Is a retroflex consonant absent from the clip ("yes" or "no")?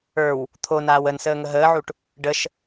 no